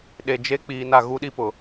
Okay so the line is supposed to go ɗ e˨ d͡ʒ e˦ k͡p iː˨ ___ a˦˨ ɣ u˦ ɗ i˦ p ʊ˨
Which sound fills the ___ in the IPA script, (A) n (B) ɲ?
A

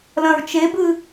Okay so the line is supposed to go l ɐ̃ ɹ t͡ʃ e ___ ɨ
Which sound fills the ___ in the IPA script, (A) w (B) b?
B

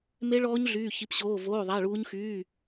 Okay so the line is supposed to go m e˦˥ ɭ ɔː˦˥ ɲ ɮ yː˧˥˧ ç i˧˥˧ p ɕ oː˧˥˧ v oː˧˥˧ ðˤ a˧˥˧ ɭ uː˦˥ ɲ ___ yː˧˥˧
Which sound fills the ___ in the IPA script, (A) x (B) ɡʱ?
A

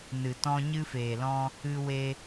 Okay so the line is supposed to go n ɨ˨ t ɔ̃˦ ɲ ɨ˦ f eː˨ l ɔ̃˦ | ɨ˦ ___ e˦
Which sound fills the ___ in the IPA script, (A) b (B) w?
B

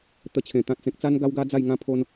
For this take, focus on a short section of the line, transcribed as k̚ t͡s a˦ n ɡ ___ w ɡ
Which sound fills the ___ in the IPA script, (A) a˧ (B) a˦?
B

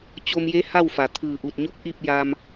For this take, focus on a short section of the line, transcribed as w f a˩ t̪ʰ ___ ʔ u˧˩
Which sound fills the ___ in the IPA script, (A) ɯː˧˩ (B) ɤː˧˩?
A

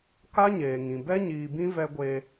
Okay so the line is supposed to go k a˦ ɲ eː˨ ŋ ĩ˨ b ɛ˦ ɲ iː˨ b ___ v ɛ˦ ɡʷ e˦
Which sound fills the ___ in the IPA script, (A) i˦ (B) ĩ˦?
B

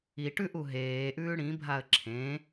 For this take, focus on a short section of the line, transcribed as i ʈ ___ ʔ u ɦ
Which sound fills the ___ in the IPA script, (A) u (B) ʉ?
B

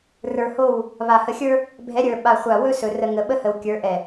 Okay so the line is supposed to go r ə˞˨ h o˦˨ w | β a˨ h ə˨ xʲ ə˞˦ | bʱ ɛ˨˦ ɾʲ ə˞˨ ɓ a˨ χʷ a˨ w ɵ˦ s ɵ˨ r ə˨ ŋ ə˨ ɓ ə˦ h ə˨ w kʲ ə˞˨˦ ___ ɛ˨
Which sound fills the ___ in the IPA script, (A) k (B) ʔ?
B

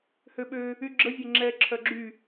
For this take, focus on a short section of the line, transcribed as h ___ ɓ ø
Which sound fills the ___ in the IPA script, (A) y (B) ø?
B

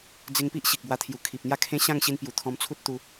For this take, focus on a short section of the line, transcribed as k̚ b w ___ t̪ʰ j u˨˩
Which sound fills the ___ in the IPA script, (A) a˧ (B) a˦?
A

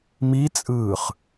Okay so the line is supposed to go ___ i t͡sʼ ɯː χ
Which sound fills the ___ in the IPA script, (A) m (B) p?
A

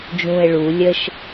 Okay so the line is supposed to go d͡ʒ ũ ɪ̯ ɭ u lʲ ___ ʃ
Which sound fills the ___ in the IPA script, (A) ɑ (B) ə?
B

